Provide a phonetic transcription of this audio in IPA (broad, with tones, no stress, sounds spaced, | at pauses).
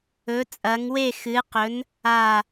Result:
ɵ˨˥ t͡sʼ ɐ˨˥ ŋ w e˥˨ x ɨ˨˥ q ɵ˨˥ n | a˥˨